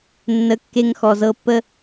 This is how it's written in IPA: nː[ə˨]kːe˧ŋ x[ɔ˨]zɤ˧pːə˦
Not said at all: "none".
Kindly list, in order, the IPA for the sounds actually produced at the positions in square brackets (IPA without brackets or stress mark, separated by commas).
ə˨˦, ɔ˨